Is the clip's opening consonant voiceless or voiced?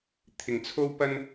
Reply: voiceless